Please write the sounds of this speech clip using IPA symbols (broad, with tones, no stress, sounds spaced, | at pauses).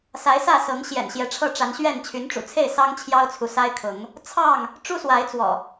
s a˨˦ ɪ̯ s ä˥˨ s ɤ˨˦ ŋ ɕ j ɛ̰˨˩ n ɕ j ɛ˨˦ ʈ͡ʂʰ ɤ˥˨ ʈ͡ʂ a˨˦ n ɕ ɥ ɛ˥˨ n t͡ɕʰ y˨˦ n ʈ͡ʂ ṵ˨˩ t͡sʰ e˥˨ ɪ̯ s ɑ˦ ŋ t͡ɕʰ j ɑ˦ ʊ̯ t͡sʰ u˨ s a˦ ɪ̯ kʰ ʊ˨˦ ŋ | t͡sʰ ɑ˥˨ ŋ | ʈ͡ʂ u˦ s w a˨˦ ɪ̯ t͡s w ɔ̰˨˩